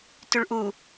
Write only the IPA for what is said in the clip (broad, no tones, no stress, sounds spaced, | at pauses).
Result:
t y ɭ ʔ u